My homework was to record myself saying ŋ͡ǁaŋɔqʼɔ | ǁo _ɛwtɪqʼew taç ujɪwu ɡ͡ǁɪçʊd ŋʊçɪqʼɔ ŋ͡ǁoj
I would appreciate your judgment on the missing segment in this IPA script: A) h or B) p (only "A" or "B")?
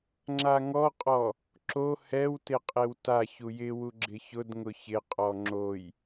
A